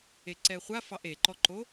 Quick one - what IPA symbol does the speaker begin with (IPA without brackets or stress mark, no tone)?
e